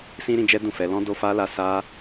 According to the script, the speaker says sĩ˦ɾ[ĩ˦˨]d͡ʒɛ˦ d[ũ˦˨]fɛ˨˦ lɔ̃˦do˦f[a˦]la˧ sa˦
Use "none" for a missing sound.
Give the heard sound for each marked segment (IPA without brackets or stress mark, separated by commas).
ĩ˧, ũ˦˨, a˦